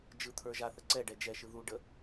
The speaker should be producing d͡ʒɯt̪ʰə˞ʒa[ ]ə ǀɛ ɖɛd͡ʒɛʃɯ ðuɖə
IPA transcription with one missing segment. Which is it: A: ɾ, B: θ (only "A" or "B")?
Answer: B